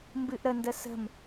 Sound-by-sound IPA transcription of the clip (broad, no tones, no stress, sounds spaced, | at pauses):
m b ɨ ʔ ɾ ə n d ə s ə̤ m